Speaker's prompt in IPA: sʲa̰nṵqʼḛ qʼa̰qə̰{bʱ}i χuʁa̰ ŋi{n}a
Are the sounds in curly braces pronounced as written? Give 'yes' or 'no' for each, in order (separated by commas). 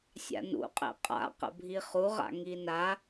yes, yes